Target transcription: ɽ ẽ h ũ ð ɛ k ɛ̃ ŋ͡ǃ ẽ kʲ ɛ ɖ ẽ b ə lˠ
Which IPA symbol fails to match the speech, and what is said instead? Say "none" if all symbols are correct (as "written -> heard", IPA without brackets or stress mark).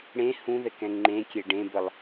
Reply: none